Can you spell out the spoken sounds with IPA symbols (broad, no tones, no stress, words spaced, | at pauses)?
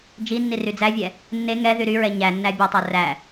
d͡ʒinːi ryd͡zævʲɛ | nːe ŋɛðy ɾyɹɛ ɲænːæ bʲɔtˤæ ræ